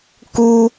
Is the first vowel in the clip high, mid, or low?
high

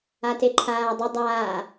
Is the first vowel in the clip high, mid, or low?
low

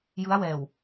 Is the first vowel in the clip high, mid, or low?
high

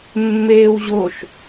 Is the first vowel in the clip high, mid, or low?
mid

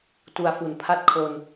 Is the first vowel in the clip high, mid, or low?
high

